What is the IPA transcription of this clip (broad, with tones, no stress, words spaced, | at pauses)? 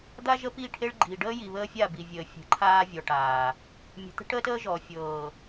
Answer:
d̪a˦ ʒə˦pi˦˨ʈʰe˦ɭ ɡ͡ǃi˨ ɖəː˦ji˨ βəː˦fʲa˦˨bi˨vʲəː˨ fʲə̤˨˦ǃʰaː˦vʲɔ˨ʈaː˨ | mʲə̤˨t̪ə̤˦ʈəː˦təː˦ ʒɔ˨ fʲɤː˨